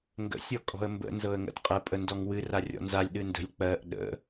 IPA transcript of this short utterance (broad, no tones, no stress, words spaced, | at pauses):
ŋɡə̰ sʲɔkʼɔ̤ə̯mbə̰ nzɤə̯ŋə̰dqʼə pʼəndɔŋwɨ rarʲɔ̰nzalʲ ɗɨndə̤lʲ k͡pɜʔ ɗə̰